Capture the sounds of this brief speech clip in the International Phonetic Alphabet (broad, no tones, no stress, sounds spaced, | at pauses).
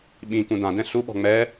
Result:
ɓ ĩ k ũ d ã d ɛ̃ ɬ u ɓ ɔ̤ ŋ͡m ɛ